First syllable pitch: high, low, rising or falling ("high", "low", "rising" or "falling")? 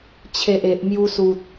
low